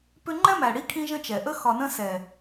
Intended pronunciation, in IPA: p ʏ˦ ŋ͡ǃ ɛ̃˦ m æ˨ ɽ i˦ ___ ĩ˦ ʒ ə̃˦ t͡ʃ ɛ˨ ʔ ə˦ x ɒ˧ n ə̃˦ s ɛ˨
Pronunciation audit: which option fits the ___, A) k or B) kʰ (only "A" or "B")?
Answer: B